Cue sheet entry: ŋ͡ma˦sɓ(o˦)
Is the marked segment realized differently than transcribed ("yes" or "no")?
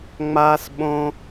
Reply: yes